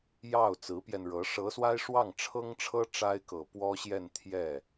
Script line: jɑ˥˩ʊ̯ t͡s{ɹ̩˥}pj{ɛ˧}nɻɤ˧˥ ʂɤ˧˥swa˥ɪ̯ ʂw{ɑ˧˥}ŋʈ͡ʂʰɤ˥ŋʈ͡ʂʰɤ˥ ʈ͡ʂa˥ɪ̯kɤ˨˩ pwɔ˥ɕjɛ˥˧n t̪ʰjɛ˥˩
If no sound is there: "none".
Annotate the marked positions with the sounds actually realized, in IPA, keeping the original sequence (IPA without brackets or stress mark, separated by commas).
ɹ̩˧˥, ɛ˧, ɑ˥˩